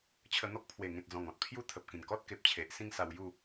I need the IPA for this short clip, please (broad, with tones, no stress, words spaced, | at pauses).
t͡ɕʰə˧n̪ɔ˦k̚ pʰwe˨˩ ŋẽ˨t̚d͡zɔ̃˨˩ŋɔ̃˨t̚ pʰju˥˧ t̪ʰə˨p̚kĩ˨˩n kɔ˦t̚ke˨p̚t͡ɕʰe˨ʔ sĩ˥˧ŋsa˧wju˥˧